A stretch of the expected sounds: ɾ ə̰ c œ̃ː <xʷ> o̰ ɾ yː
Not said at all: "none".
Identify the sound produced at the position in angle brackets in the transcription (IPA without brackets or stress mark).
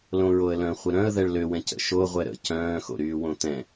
x